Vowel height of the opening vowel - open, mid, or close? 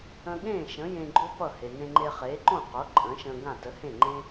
mid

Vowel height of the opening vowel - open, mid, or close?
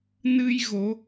close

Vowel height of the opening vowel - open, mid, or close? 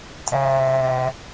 open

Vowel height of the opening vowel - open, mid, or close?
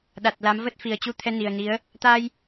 open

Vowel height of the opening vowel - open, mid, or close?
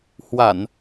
open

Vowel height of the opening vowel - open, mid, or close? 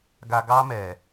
open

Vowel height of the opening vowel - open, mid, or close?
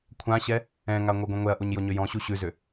open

